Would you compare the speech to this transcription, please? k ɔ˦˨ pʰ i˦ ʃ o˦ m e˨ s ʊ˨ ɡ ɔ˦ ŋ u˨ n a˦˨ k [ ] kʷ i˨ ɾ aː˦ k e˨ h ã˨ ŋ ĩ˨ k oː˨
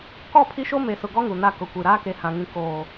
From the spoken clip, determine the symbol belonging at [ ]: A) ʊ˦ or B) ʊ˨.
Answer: B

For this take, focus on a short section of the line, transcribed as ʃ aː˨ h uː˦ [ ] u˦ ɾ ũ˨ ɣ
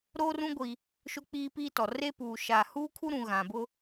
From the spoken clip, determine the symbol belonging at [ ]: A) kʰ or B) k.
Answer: A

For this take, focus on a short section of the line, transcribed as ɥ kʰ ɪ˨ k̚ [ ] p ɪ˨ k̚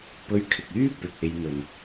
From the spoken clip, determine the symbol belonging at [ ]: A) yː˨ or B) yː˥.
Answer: B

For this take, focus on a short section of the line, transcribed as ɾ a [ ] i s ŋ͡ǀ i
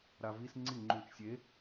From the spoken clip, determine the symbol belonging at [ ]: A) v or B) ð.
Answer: A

